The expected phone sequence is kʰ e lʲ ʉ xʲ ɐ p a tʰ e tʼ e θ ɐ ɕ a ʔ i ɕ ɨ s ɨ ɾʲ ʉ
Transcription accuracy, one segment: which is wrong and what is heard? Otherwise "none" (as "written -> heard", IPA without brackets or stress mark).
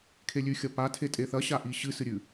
none